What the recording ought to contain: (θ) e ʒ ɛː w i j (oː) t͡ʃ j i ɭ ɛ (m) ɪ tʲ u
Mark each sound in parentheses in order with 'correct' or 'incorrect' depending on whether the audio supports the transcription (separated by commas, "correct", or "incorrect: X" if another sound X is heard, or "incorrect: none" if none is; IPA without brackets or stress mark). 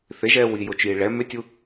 correct, incorrect: o, correct